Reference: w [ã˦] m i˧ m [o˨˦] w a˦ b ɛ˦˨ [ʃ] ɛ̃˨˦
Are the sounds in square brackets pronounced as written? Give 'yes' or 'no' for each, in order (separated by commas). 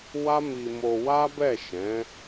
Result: no, no, yes